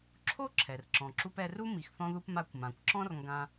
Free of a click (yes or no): no